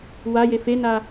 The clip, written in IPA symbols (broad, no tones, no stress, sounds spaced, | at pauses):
w a j e f e n a